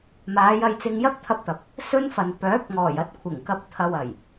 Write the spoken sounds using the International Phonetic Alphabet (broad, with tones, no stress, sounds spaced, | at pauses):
m aː˨˧ j ɐ˧ j t͡s ɪ˧ ŋ j ɐ˥ k̚ t̪ʰ ɐ˧ p̚ t̪ ɐ˨ p̚ | s ɵ˥ n f ɐ˨ n p œː˨˥ p̚ ŋ ɔː˨˩ j ɐ˧ t̚ kʷʰ ɪ˨˩ ŋ k ɐ˧ p̚ t̪ʰ ɐ˨ w ɐ˨˩ j